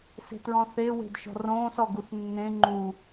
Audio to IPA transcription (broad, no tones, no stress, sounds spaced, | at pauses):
s e̤ t ɹ ɔ̃ θ e w e̤ d ʃ ɔ̤ r õː s ɔ ɡ u θ nː ẽ ŋ͡ǃ u